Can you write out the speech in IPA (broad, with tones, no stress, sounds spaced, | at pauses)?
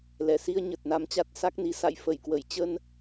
l ɛ˧˩ s i˧ ə̯ ɲ ə˨˩ t̚ n a˧ m t͡ɕ a˦˥ t̚ s a˦˥ k̚ n i˨˦ s a̰˧˨ j f ə˧˩ j k w ə˧˩ j t͡ɕ ə˧ n